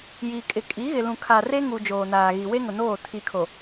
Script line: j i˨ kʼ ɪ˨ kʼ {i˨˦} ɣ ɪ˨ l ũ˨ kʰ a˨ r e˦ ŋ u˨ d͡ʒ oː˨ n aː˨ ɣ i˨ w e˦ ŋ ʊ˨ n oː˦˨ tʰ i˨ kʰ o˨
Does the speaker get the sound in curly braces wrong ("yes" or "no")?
no